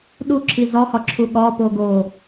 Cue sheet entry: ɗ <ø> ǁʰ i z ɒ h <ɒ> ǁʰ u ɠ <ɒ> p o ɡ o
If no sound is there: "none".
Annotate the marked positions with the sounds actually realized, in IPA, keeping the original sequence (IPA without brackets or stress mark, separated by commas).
u, ɒ, ɒ